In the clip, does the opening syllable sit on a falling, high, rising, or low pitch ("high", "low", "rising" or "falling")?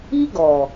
high